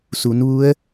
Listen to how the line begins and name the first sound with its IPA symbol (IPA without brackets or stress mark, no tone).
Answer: s